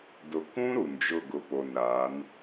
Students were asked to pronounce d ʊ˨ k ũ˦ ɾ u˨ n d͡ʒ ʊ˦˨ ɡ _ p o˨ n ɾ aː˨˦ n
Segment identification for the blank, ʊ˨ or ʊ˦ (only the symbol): ʊ˨